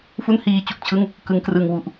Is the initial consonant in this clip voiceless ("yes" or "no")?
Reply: yes